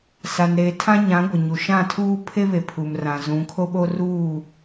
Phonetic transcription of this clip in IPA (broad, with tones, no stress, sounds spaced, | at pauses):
s a˨ n ɾ eː˨ tʰ ã˦ ɲ ã˨˦ ɡʷ ɪ˨ ɲ u˨ ʃ ã˦˨ tʰ uː˦ pʰ e˦ β e˨ pʰ u˨ m r ã˨ z ũ˨˦ kʰ o˦ ɓ o˦ r uː˦˨